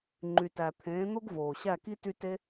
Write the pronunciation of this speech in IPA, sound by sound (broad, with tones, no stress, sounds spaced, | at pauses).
ŋ͡ǃ y˨ t æ˨ t̪ʰ ẽː˨˦ n̪ o˦ ɡ v oː˨ ɕ æ˦˨ k i˦ t y˦ t e˦